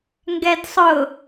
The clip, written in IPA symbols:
ŋ ɡ ɛ d sˤ ʊ

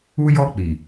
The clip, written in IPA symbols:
u˦ j ɔ˦ k͡p i˨

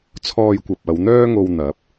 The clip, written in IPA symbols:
t͡sʰ ɔː˧ j kʷ ɐ˨ p̚ ɐ˨˧ w n̪ œː˥ ŋ o˧ w n̪ ɐ˨˥ p̚

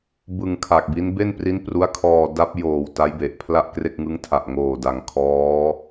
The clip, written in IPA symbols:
b ɯ˧ ŋ kʰ a˨˩ k̚ b i˦˥ n b e˥˩ n p r i˦˥ n p r u˦˥ a̯ kʰ ɔː˧ d a˦˥ p̚ j oː˨˩ w t a˦˥ j b e˨˩ ʔ pʰ l a˥˩ ʔ k r e˥˩ k̚ ŋ ɯ˦˥ ŋ tʰ a˨˩ ʔ ŋ oː˨˩ d a˩˦ ŋ kʰ ɔː˦˥

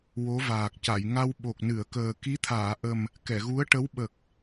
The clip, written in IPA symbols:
w o˧˥ v aː˨˩ k̚ c a˨˩˨ j ŋ a˧ w ɓ o˨˩ k̚ n ɨ˨˩˨ ə̯ k əː˨˩ k i˧˥ t̪ʰ aː˨˩˨ ʔ ə˨˩ m | k ɛ˨˩˨ ɣ u˧˥ ə̯ ʈ ə˧˥ w ɓ ə˨˩ k̚

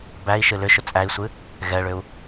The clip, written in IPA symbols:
b æ i̯ ʃ ɨ l ʏ ʃ ʏ t͡sʼ æ i̯ sʷ ɨ | ɣ ɛ ɭ ʏ u̯

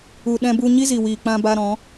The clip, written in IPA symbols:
u˨ ɗ ɛ̃˧ b u˧ ɲ i˦ z i˨ w iː˨ k͡p ã˧ b a˧ ɾ ɔ̃˨˦

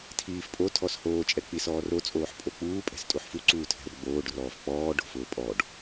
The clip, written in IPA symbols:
tʰ iː f pʼ o tʰ ɔ s h oː t͡ʃʼ ɛ k͡p i s ɔː r o t͡sʼ oː ħ pʼ o k͡p uː pʼ ɛ̤ s tʼ u ħ f u ǀ uː tʰ ɛ̤ r ɡ͡b oː ɖ r ɔː f k͡p ɔː ɖ o̤ f ʊː pʼ ɔ ɖ

